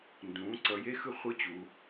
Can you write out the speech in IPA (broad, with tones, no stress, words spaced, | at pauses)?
ndũː˩˧ǀʌ˩˧ je˧˥˧xɯ˥˨ χʷɯ˦˥t͡ɕu˩˧